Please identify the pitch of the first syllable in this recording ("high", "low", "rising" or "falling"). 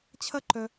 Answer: high